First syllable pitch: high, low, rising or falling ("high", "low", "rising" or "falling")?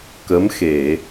rising